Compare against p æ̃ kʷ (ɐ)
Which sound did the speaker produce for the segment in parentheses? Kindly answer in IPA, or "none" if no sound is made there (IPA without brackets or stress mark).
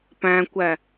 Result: æ